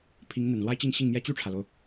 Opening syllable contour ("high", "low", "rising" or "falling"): rising